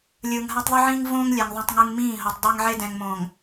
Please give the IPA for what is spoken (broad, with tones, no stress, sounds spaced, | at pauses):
lʲ ɯː˨ ŋ ɦ a˦ tˤ ðˤ ɯ˦ ʕ ĩː˦ ŋ v õː˦ ŋ lʲ ɛ˨ ŋ ðˤ õ˦ tˤ ŋ ɯ˦ ŋ m ĩː˦˨ ɦ o˨ tˤ dˤ ɛ˦ ŋ ʕ e˦ d ɛ̃˨ ŋ m õː˨ ŋ